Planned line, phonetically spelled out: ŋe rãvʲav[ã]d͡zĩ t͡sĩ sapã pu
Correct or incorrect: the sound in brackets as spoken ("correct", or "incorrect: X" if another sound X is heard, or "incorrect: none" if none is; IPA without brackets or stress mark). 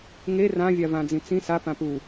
correct